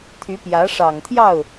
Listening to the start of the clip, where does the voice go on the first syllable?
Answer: rising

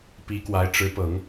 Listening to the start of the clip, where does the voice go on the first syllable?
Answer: rising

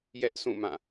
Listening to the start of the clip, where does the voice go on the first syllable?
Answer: high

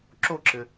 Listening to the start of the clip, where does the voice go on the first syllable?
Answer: falling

